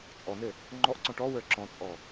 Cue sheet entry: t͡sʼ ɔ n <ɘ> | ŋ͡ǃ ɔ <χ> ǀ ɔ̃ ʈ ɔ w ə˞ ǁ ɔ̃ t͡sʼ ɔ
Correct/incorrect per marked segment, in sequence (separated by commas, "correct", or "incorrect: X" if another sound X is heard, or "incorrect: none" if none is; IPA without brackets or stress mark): correct, incorrect: ʔ